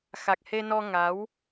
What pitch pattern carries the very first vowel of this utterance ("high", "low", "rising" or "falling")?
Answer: low